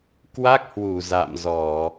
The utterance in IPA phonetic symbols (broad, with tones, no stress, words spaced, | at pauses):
kwa˦˥k̚ hwu˧˩ za̰˧˨mzɔ˧˩˨